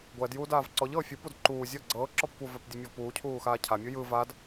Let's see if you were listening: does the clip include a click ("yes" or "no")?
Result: yes